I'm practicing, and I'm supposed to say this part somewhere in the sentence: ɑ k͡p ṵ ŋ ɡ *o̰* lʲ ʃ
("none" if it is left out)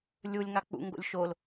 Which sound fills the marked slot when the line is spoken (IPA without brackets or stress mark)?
o̰